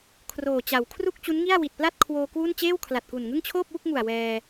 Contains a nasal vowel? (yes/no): no